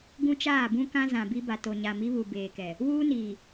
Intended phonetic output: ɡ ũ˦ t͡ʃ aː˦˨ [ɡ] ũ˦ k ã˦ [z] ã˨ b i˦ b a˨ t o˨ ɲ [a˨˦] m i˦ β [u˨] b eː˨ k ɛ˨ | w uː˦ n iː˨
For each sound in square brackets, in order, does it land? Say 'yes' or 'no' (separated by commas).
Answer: no, yes, no, yes